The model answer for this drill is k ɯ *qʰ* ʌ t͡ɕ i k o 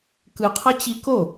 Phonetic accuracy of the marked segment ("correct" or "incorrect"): correct